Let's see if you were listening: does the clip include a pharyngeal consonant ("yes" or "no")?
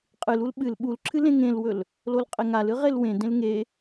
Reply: no